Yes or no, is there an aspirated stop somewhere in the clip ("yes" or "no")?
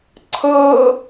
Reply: yes